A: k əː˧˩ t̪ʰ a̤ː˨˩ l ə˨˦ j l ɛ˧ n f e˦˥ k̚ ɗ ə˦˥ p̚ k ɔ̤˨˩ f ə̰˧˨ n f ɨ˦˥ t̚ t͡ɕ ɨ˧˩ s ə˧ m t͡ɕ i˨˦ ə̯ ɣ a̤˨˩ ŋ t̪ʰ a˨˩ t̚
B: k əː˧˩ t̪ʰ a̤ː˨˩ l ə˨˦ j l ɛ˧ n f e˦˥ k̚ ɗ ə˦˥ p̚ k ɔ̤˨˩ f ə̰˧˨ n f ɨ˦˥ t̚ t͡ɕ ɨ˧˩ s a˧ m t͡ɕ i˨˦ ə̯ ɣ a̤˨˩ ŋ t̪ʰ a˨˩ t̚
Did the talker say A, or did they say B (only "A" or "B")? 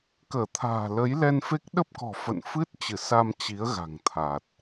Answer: B